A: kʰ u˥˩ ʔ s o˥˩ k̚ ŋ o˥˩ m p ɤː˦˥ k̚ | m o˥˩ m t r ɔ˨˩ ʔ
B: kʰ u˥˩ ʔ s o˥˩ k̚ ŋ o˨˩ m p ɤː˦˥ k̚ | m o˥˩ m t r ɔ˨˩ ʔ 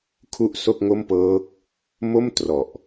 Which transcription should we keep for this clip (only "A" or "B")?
A